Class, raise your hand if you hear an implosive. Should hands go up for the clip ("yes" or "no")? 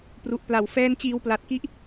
no